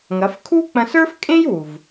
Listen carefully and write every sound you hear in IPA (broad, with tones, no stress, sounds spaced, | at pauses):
ŋ ɐ˩˧ f kʰ u˥ k͡p ɐ̃˧ s ə˞˥ f kʼ ẽ˥ j w u˩ v